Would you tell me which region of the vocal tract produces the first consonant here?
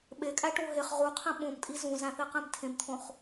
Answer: lips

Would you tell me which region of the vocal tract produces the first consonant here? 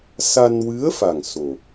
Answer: tongue tip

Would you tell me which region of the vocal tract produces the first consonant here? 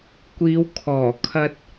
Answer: velum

